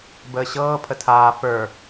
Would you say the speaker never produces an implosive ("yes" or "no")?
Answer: yes